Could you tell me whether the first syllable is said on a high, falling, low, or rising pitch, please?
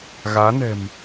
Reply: rising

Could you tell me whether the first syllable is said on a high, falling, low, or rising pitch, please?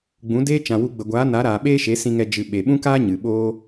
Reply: rising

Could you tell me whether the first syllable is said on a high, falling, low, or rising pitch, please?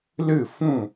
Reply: falling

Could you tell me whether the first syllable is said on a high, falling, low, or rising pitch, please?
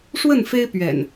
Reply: falling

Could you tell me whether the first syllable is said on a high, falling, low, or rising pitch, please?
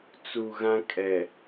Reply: low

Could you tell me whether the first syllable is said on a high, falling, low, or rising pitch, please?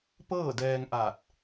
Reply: falling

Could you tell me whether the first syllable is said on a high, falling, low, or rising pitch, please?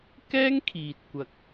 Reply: high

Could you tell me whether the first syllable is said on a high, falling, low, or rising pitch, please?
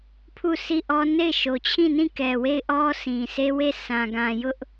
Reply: falling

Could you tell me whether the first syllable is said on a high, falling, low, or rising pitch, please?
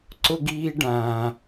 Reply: high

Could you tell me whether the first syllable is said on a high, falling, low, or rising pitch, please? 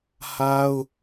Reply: high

